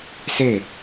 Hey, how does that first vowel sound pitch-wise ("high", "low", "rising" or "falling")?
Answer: falling